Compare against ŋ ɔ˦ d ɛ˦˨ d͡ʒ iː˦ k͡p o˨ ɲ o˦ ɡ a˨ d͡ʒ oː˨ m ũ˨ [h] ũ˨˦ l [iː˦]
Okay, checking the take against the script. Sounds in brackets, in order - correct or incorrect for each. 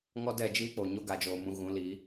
incorrect: ɣ, incorrect: iː˨˦

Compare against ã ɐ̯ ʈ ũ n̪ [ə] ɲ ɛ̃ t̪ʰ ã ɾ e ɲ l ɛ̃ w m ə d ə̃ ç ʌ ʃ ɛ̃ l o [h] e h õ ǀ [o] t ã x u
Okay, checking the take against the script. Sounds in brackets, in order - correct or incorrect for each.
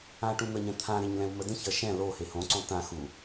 correct, correct, incorrect: õ

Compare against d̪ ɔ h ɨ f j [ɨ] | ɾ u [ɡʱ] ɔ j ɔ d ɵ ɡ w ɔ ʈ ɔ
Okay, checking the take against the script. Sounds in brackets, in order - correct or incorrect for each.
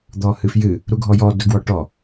correct, correct

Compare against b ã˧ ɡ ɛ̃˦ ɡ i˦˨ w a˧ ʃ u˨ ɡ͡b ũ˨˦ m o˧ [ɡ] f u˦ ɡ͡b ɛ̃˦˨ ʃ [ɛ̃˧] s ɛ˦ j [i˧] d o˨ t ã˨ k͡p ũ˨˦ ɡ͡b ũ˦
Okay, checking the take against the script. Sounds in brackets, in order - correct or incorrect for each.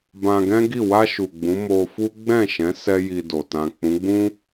incorrect: none, incorrect: ɛ̃˨˦, correct

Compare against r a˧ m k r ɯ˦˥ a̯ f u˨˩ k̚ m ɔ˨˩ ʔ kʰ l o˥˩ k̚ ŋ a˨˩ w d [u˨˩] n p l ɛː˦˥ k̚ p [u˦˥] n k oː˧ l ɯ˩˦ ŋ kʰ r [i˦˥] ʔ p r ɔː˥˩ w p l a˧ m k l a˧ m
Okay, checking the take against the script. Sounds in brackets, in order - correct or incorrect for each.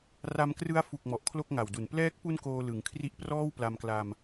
correct, correct, correct

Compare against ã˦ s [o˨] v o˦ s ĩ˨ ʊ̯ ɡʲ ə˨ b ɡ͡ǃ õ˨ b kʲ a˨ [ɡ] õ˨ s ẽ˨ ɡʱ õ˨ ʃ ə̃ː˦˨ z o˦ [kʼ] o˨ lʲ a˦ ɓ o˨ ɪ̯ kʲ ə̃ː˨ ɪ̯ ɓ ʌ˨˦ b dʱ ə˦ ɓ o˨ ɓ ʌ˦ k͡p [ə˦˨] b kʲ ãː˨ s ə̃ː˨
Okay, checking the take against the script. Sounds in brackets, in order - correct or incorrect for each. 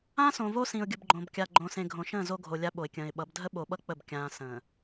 incorrect: õ˨, incorrect: ɡ͡ǃ, incorrect: ɡʱ, correct

